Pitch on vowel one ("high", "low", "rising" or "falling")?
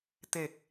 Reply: low